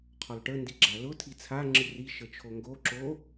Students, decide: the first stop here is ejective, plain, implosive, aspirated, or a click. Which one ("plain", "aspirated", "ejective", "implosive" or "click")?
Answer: aspirated